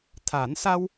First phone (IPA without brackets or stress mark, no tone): t̪ʰ